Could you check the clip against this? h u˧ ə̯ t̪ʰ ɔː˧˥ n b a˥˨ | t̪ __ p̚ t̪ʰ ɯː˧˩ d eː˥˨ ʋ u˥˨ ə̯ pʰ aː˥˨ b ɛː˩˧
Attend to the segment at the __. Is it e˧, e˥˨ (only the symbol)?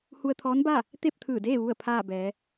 e˥˨